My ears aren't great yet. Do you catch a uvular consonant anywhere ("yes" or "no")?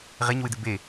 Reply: yes